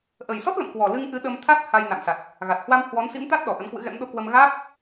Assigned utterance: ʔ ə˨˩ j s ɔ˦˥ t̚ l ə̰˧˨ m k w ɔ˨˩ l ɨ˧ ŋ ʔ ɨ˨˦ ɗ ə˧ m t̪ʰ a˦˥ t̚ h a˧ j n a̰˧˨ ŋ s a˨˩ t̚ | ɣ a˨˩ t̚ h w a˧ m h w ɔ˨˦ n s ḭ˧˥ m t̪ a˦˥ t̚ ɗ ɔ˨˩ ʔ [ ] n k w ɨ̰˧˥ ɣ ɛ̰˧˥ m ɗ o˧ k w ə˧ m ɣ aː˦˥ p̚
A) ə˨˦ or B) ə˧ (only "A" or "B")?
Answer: A